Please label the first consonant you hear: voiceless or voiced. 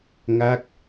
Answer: voiced